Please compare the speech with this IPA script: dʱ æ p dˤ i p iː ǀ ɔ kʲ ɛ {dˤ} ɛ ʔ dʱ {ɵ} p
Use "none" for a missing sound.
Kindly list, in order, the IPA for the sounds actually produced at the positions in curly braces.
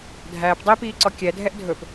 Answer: dʱ, ɵ

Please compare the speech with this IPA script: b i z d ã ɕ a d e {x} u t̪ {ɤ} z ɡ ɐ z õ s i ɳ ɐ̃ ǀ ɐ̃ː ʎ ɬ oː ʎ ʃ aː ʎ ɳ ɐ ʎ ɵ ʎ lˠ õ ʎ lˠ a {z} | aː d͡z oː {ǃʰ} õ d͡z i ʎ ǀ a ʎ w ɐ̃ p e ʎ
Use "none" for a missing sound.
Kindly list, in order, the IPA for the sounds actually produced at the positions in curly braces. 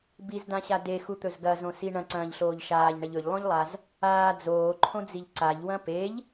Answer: x, ɵ, z, ǃʰ

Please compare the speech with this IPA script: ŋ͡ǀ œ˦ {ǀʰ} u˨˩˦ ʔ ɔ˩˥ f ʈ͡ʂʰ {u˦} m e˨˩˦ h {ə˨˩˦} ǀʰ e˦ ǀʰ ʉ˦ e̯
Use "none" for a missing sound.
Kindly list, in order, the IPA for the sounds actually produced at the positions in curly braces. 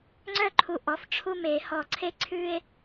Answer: ǃʰ, u˦, ɔ˨˩˦

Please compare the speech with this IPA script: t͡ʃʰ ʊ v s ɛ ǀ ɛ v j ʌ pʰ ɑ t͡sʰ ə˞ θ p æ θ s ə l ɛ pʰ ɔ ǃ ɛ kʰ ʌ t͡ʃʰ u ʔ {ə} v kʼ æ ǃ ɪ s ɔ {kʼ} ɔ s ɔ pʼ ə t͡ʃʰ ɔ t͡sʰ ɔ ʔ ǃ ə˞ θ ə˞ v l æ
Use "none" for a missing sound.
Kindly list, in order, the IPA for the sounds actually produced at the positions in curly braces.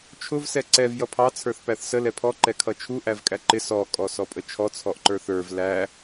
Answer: æ, kʼ

